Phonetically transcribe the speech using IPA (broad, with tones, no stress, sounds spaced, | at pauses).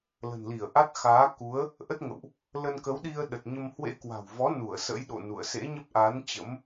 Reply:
l ə̤˨˩ n l i˧˩ ə̯ ʔ a˦˥ t̚ x aː˨˦ k u˨˦ ə̯ | ʔ ə˦˥ t̚ ŋ ə̰˧˨ w ʔ | l ə˧ n k ə˨˦ w ɗ i˧ ə̯ ɗ ə˨˩ t̚ ɲ ə˧ m h w ḛ˧˥ k w a̤˨˩ w v ɔ˨˦ n u˧˩ ə̯ s ə̰˧˥ j ɗ o̰˧˨ n ṵ˧˨ ə̯ s ḛ˧˥ ɲ ə˦˥ p̚ ʔ a˨˦ n t͡ɕ ə̰˧˥ m